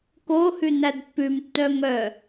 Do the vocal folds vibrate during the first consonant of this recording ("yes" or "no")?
no